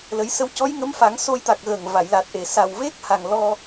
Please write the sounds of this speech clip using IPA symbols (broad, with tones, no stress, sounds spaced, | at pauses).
l ə˨˩˦ j s ə˧ w c ɔ˧˥ j ŋ ə˧˥ m f a˨˩˦ ŋ s o˧ j t̪ a˨˩ k̚ ɣ əː˨˩ ŋ v a˨˩˨ j l a˨˩ t̚ ʔ e˨˩ s a˨˩ w v e˦˥ k̚ h a˨˩ ŋ l ɔ˧